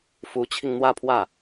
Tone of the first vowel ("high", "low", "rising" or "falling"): rising